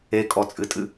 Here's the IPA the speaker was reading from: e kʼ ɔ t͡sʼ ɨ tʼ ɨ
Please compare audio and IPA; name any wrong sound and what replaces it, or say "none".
none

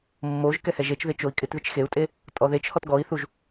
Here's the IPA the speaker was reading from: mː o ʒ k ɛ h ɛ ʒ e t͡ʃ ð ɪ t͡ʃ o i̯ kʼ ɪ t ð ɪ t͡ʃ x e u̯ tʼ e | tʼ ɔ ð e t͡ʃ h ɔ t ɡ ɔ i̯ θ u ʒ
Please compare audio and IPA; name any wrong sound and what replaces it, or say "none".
none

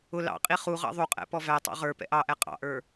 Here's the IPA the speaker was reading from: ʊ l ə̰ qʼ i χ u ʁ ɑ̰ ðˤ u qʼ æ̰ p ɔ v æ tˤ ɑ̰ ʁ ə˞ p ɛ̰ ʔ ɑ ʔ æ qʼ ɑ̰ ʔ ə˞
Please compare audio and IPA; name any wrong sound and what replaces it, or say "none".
ə̰ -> ɑ̰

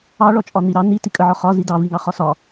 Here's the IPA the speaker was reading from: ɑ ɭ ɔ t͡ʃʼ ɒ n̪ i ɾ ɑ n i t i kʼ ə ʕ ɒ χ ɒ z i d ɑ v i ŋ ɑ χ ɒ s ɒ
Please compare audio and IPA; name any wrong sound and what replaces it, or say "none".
none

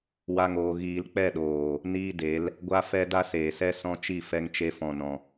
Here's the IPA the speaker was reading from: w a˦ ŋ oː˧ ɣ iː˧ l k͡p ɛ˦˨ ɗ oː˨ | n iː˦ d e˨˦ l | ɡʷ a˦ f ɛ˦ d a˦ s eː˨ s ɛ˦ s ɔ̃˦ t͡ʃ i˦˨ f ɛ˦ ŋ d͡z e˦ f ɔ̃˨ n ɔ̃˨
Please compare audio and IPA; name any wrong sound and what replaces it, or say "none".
d͡z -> t͡ʃ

